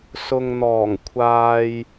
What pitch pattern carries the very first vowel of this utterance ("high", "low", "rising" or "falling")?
low